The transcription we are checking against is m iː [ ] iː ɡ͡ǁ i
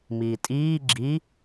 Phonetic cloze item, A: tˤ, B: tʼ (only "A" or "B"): B